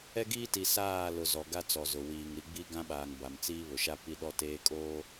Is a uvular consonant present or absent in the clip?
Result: absent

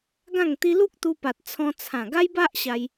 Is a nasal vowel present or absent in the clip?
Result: present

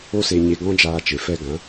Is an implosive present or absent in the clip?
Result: absent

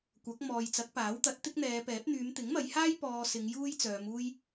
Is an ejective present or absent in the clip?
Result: absent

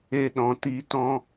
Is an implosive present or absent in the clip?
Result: present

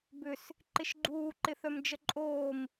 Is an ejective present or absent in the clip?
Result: present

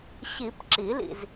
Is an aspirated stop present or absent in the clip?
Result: absent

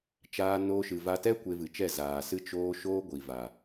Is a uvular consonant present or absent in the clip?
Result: absent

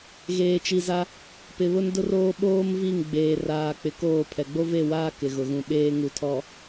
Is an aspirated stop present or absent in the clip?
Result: present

